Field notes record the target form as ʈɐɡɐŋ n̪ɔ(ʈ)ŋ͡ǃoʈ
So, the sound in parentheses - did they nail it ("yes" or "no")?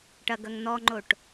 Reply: no